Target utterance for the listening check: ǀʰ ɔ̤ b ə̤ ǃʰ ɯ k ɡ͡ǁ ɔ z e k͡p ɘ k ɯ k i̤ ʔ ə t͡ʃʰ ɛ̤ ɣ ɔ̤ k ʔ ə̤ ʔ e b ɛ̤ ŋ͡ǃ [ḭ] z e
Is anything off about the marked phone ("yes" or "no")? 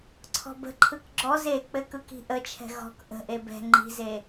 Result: yes